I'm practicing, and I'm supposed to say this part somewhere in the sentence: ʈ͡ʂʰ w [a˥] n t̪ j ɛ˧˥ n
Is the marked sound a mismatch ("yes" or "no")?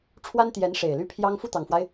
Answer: no